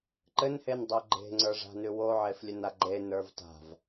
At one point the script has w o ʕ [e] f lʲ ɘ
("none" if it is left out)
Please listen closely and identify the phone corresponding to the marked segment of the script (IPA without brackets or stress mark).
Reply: e